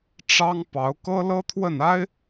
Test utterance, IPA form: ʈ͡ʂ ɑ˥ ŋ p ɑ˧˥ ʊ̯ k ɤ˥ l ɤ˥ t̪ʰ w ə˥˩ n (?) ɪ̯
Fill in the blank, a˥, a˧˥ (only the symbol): a˥